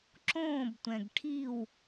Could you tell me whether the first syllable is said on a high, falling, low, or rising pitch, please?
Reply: falling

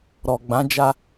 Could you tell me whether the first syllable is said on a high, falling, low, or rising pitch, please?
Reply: low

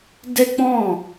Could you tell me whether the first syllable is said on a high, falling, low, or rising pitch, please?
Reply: high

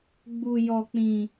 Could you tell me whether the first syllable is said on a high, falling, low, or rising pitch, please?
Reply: low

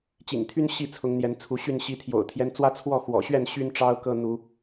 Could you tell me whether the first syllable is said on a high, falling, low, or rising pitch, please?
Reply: low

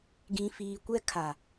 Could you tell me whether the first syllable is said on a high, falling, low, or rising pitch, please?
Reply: low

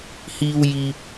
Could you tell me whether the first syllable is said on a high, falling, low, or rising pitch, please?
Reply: high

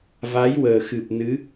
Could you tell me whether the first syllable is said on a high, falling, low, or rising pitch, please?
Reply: rising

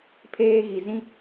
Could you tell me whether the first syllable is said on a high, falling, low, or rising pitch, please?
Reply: high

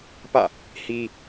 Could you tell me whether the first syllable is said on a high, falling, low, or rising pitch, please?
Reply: falling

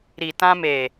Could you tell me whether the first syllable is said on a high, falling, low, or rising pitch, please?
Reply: low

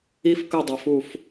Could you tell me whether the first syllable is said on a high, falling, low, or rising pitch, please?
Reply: high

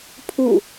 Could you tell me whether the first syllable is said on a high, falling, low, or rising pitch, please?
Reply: falling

